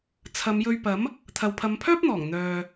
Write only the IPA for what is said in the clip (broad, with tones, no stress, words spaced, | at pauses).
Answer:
t͡sʰɐ˨˧mjɵ˧ɥpɐ˨˥m | t̪ʰɐ˨wpʰɐ˨˧mpʰœː˥p̚n̪ɔː˨˩ŋ n̪œː˨